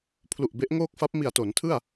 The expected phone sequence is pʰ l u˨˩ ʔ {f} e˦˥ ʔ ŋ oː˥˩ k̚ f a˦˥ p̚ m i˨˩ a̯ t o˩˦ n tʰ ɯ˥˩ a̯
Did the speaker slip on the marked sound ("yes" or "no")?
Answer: yes